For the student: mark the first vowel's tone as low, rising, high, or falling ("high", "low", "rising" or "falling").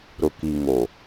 low